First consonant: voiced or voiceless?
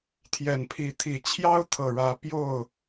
voiceless